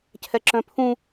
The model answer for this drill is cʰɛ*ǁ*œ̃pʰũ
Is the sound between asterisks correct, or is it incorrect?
correct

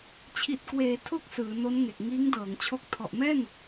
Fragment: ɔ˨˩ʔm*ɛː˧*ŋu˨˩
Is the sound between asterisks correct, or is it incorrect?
incorrect: ɛː˥˩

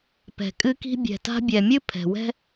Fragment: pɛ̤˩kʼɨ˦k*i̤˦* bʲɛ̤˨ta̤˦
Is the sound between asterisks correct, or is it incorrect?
correct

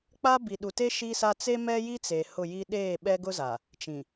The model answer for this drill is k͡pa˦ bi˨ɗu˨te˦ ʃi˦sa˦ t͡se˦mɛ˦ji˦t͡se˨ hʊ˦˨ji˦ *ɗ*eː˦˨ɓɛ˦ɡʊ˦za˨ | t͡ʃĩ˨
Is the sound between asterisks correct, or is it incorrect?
correct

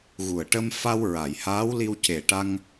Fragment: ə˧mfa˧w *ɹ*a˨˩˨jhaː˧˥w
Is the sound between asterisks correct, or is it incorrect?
correct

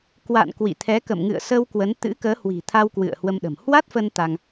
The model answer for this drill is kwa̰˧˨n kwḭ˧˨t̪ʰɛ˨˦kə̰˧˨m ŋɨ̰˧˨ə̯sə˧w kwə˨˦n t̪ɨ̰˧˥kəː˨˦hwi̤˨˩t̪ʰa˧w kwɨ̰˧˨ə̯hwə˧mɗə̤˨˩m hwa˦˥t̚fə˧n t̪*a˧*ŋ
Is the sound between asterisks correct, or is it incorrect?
correct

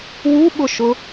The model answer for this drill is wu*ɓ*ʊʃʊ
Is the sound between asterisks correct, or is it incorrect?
correct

